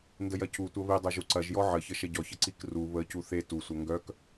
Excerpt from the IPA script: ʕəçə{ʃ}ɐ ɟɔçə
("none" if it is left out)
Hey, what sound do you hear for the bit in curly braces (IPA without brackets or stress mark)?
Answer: ʃ